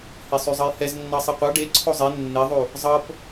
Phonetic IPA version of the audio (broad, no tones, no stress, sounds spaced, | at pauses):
h e sˤ y zˤ ɤ j h ɛ z nː ɑ sˤ i qʷ ɑ ɖ e ǀʰ o zˤ e nː e ðˤ u | zˤ ɤ p